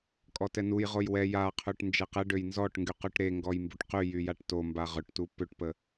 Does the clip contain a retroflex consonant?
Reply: yes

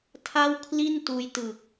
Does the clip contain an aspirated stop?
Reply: yes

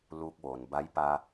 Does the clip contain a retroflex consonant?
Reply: no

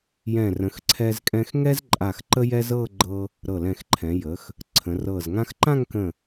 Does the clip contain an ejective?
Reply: yes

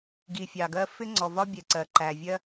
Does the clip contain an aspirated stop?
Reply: no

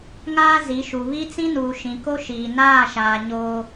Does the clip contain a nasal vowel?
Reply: yes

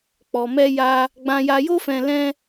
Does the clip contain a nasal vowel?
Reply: yes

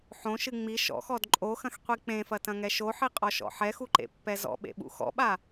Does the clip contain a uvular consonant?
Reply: yes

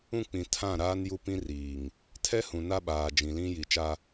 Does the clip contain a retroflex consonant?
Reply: no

